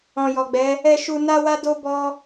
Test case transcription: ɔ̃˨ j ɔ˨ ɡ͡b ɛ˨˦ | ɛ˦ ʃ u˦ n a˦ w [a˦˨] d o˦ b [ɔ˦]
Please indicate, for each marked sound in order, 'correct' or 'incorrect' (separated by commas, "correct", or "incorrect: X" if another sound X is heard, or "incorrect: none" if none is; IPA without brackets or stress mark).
incorrect: a˦, correct